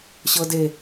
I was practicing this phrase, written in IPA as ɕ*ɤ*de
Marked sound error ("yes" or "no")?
no